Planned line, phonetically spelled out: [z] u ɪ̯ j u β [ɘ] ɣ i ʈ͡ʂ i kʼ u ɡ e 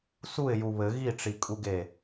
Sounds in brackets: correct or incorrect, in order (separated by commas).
incorrect, correct